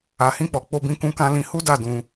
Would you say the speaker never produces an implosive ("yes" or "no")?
yes